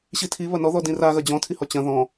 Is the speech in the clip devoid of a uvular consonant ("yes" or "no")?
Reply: yes